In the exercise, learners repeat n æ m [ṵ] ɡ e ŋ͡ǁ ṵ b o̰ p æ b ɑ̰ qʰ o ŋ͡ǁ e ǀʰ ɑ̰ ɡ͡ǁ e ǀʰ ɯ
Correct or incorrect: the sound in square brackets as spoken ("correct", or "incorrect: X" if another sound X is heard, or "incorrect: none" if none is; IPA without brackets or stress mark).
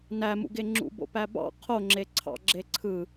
correct